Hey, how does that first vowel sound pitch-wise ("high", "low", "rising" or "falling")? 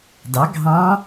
rising